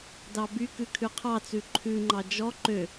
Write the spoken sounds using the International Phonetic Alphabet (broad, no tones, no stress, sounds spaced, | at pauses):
d ɑ b y k ʉ kʰ ʉ qʰ ɑ t͡s ʉ ǃʰ ʉ ŋ͡ǃ ɑ d͡ʒ ɔ ǃ ø